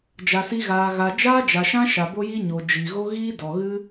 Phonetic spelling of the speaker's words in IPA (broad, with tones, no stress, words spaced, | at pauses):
d͡ʒa˧si˦ɣaː˧ɣa˧ d͡ʒaː˦d͡ʒa˨ʃã˦ ʃa˨bo˦ji˦ɲo˨ d͡ʒi˨ɣo˦ ɣiː˦dɔ˨ɣɨ˦